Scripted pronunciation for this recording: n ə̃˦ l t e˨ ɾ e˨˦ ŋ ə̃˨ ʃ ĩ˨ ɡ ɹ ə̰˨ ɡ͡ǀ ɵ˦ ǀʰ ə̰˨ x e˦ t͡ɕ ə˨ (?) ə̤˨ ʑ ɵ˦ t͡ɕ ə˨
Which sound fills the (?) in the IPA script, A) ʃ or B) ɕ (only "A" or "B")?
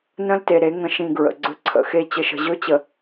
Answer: A